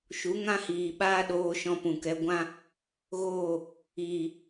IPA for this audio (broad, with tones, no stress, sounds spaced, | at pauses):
ʃ u˨˦ ŋ ã˦ h iː˨ ɓ aː˦ ɗ oː˧ ʃ ɔ̃˧ p ũ˨ k ɛ˧ ɡʷ ã˦ | ɣ oː˦˨ | iː˨